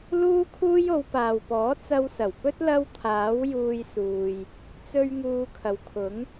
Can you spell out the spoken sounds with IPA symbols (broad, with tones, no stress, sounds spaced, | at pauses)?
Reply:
l uː˥ kʰ uː˥ j o˨˧ w p aː˨ w p ɔː˨˥ t͡s ɐ˧ w s ɐ˨˩ w p ɵ˥ t̚ l ɐ˥ w t̪ʰ aː˨˥ w j uː˧ j s uː˨ j | t͡s ɵ˧ ɥ ŋ uː˧ kʰ ɐ˨ w kʰ ʊ˨˥ ŋ